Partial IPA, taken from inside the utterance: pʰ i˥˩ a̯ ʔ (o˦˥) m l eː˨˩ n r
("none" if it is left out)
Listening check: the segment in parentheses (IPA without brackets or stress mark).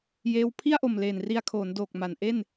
o˨˩